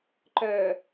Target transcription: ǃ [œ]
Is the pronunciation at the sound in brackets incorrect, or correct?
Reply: correct